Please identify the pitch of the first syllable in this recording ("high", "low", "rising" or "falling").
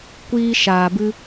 high